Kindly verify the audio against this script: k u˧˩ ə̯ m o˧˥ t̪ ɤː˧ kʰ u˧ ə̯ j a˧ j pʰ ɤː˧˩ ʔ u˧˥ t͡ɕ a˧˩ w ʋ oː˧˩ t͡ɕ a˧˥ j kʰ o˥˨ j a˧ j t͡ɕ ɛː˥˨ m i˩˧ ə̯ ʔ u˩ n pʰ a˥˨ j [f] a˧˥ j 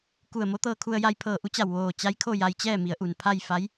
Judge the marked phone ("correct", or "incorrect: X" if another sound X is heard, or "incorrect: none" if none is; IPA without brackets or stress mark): correct